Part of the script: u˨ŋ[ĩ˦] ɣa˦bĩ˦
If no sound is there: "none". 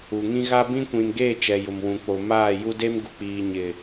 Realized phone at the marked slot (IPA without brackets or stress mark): ĩ˦